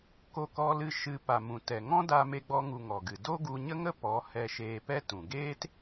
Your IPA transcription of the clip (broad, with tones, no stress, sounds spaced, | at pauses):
k o˧ k ɔ˧ l ɨ˧ ʃ ɨ˨ p a˨ m ũ˨ t ɛ˨ ŋ ɔ̃˦ d aː˧ m e˧ ɡ͡b ɔ˧ ŋ u˨ ŋ ɔ˨ ɡ ɨ˨ d o˦ ɡ u˧ ɲ ə˦ ŋ ə˦ p ɔ˨˦ h ɛ˧ ʃ eː˧ p ɛ˦ t ũ˨ ɡ eː˦ t